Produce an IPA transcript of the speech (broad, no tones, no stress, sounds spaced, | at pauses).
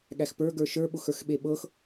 ɠ æ x p ə˞ ɡ ə˞ ʃ ə˞ ɓ ʊ x ə˞ x ɓ e ɓ ɤ x